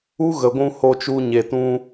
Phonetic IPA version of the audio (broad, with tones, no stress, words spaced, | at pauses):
u˦ɣə˨ɡʷũ˧ ho˧t͡ʃu˧ ɲe˨tũ˦